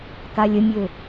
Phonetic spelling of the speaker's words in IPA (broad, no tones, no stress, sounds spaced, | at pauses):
k a lʲ ə mʲ ø